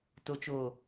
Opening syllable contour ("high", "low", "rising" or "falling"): low